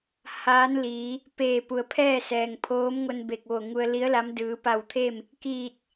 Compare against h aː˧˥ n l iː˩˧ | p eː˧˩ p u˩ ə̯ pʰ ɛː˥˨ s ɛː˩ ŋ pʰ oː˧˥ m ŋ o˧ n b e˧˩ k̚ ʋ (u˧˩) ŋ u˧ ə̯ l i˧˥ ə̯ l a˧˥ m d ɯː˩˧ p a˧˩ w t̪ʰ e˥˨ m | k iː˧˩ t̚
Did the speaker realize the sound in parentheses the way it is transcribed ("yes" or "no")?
no